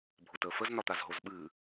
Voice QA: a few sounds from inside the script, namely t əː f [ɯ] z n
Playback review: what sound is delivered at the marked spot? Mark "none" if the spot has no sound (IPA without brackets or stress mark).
ə